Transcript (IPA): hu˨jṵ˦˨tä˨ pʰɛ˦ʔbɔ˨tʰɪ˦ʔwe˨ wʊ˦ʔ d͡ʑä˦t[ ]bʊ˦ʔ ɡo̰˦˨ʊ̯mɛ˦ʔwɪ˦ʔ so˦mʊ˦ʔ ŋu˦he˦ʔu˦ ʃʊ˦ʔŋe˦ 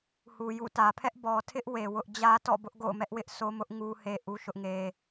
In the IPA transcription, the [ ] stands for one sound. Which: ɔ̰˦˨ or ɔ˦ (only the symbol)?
ɔ̰˦˨